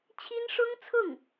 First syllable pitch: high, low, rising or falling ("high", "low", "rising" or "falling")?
high